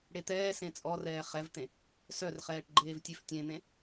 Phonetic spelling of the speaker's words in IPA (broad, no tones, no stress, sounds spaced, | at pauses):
ɽ e t̪ ɛː s ẽ t͡sʼ ɔ r ɛː χ ɛ v t̪ ẽ | s œ r χ ɛː ʈ ɡ͡ǃ eː v tʲ e f tʲ ẽ n̪ ẽ